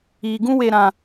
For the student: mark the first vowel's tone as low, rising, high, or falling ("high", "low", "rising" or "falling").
low